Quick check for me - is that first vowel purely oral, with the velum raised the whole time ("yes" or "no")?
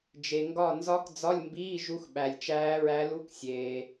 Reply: yes